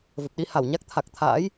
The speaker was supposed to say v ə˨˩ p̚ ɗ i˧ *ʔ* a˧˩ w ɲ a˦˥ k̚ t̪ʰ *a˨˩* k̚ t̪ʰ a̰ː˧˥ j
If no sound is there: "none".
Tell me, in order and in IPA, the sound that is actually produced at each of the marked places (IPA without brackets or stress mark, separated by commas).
h, a˨˩